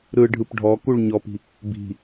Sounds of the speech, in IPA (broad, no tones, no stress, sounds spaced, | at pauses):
ɾ ɯ ɖʱ ɯ p ɖʱ ɔ k u ɭ ɲ ɔ p i̤ | b i̤